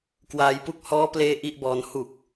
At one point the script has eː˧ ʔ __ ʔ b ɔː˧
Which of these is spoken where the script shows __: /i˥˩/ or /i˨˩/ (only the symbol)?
i˥˩